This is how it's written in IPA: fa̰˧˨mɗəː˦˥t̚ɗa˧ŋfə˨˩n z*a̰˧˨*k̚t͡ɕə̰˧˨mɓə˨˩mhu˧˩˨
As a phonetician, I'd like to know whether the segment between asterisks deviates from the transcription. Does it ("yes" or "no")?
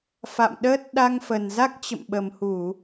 yes